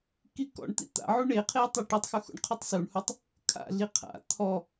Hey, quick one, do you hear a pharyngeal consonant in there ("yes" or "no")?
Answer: yes